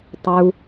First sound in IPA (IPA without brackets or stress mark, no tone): tˤ